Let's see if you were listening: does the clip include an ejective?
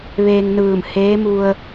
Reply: no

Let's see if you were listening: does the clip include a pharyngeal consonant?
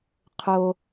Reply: no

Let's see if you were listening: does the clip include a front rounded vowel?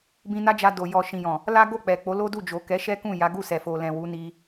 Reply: no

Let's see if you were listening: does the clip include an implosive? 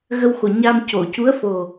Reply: no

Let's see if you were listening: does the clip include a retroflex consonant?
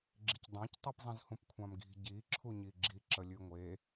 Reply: no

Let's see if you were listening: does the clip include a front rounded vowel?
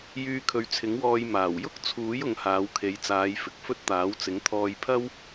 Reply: yes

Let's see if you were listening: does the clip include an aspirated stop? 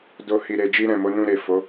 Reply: no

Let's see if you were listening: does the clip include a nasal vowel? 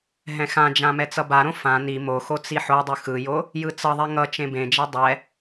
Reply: yes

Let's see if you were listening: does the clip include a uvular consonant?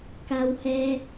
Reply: no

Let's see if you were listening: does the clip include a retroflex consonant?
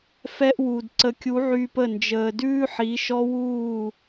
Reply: no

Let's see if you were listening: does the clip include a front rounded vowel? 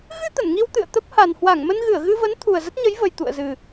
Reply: no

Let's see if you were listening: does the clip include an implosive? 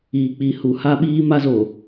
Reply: yes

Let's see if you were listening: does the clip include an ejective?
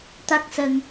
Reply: no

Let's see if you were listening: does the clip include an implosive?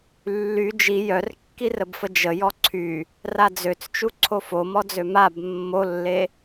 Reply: no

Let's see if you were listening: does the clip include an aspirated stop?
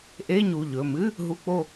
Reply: no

